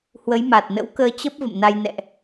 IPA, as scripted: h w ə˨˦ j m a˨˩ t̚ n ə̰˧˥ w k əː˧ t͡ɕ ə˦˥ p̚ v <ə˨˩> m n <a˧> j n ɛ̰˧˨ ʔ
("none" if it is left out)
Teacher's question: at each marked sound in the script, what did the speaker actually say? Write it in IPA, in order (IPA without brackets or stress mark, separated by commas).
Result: ə̰˧˨, a˧